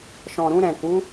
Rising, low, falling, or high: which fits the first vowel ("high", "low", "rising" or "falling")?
low